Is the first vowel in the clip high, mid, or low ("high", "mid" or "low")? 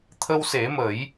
mid